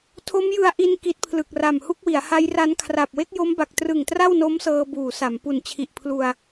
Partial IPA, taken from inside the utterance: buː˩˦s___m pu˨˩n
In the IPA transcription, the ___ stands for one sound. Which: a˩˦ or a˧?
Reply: a˩˦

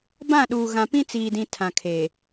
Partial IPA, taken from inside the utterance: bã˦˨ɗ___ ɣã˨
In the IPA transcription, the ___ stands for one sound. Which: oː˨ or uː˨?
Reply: uː˨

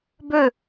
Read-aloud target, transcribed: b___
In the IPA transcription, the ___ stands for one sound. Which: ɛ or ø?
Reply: ø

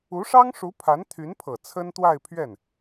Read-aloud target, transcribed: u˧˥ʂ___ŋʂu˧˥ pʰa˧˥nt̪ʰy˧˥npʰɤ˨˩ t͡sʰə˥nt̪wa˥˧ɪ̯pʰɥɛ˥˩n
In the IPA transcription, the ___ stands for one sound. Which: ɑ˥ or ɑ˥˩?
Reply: ɑ˥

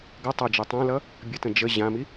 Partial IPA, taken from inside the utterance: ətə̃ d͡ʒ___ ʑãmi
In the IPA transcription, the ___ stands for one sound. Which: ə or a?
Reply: ə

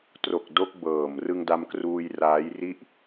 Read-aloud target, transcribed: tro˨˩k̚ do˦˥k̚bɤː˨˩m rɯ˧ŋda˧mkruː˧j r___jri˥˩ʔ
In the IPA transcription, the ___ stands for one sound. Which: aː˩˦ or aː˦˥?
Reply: aː˦˥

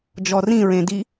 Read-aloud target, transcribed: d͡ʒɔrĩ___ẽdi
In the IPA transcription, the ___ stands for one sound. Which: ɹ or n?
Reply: ɹ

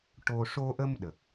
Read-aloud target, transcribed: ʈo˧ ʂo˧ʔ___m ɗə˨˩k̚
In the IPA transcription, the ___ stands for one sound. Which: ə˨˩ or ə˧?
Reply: ə˧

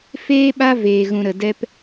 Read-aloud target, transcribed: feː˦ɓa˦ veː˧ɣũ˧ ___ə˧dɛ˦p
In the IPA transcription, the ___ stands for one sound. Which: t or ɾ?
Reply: ɾ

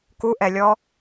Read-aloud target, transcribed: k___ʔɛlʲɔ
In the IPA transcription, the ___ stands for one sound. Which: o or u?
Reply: u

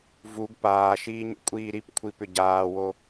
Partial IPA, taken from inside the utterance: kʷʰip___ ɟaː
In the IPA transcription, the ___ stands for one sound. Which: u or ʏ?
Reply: ʏ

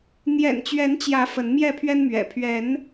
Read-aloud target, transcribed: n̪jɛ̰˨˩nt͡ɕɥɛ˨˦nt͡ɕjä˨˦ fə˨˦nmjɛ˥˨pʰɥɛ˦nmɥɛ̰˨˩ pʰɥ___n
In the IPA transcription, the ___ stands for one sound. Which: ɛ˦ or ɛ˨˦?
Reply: ɛ˨˦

